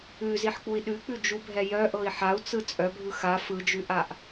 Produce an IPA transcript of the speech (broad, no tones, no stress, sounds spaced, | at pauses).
ʉ z i ħ k͡p u i̯ ɗ ʉ k͡p ʉ d͡ʒ u bʱ ɛ j œ ʔ ɤ i̯ ħ a u̯ t͡s ɯ t͡sʼ œ bʱ ɯ x a f ɯ d͡ʒ ʉ ʔ a ʔ